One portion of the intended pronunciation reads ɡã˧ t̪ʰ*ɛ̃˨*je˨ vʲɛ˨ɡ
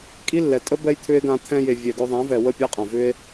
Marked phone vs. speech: incorrect: ɛ̃˧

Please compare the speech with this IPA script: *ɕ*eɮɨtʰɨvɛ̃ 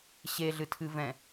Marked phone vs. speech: correct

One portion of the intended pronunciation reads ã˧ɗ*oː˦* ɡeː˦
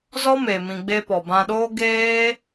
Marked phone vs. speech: correct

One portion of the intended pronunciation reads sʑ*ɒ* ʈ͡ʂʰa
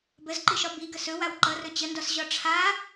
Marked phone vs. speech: correct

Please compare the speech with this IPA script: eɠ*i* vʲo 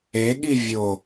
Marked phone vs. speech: correct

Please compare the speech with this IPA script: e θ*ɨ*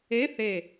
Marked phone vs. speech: incorrect: e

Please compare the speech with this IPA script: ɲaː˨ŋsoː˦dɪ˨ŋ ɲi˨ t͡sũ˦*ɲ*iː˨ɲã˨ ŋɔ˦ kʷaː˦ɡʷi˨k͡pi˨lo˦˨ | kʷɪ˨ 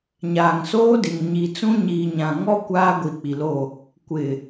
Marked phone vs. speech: correct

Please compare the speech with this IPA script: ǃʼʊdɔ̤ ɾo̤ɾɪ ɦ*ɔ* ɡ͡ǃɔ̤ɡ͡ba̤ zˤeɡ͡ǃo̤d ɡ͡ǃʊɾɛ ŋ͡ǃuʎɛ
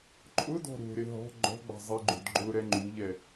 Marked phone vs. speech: incorrect: ɔ̤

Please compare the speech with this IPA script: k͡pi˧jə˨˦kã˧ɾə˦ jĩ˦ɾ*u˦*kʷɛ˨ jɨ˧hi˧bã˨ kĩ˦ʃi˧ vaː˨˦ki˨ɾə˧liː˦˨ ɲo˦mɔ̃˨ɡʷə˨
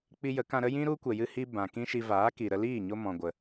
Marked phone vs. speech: correct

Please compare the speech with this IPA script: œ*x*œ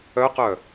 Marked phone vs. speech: incorrect: q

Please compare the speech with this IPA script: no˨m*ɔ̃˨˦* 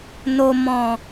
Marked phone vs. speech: incorrect: ɔ̃˨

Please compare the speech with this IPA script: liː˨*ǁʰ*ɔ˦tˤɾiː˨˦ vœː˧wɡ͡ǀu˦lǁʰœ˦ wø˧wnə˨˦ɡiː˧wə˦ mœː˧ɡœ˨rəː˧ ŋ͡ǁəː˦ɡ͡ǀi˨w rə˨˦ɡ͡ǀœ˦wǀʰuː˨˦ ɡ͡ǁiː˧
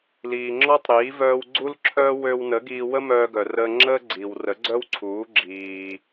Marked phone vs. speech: incorrect: ŋ͡ǁ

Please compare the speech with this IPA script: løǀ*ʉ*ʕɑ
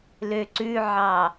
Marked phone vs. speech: correct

